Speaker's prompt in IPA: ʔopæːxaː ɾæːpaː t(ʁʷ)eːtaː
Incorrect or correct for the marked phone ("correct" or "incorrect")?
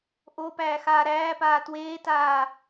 incorrect